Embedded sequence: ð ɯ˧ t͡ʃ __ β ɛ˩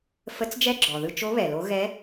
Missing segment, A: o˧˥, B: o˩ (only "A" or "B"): A